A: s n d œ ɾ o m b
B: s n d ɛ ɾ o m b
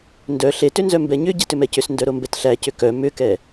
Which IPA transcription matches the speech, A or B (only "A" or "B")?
A